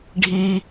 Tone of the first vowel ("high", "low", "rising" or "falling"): high